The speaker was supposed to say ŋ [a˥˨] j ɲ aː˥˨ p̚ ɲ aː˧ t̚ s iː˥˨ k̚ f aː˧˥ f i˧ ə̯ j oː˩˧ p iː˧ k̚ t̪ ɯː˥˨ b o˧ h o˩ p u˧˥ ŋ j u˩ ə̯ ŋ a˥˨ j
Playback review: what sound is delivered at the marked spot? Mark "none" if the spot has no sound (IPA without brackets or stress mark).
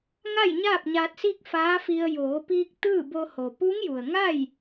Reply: a˥˨